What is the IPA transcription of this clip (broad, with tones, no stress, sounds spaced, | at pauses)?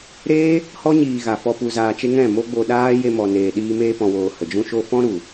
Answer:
ɾ eː˦ | h ɔ˦ ɲ iː˨ ɣ a˨ f ɔ˧ p u˨ z aː˨ t͡ʃ e˧ ŋ ɛ̃˦˨ m o˦ ɡ͡b o˧ ɗ aː˦ j e˧ m ɔ˨ n eː˨ ɗ iː˧ m eː˧ p ɔ̃˨ w oː˨ h ə˨ d͡ʒ ũ˦ ʃ o˦ f ɔ̃˦ ɾ u˨